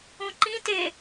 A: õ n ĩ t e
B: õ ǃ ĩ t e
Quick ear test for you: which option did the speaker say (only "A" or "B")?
B